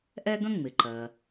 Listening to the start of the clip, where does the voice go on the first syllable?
high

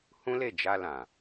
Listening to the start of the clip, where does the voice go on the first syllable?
high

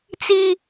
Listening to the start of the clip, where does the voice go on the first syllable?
high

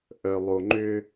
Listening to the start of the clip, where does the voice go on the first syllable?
low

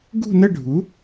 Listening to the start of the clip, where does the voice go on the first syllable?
falling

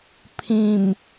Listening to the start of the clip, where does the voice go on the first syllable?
low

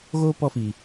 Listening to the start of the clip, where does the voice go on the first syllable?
high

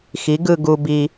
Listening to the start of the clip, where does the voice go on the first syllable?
rising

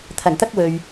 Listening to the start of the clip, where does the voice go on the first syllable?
low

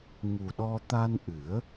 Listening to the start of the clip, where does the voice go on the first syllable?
low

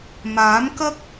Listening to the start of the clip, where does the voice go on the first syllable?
rising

